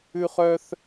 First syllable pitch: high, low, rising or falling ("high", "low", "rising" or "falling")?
high